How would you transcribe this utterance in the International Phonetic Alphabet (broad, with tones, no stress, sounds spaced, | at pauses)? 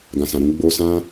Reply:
ɡ ã˨ s ã˨ ɾ ũ˧ ɡ͡b o˧ s ã˦